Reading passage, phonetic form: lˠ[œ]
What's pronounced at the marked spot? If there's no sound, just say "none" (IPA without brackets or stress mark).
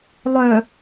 œ